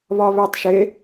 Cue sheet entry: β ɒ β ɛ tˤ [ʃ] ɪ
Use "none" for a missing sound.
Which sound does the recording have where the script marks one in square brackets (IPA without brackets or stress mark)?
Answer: ʃ